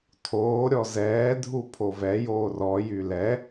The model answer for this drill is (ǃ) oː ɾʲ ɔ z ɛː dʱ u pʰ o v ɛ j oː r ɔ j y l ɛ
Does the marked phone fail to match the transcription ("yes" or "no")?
yes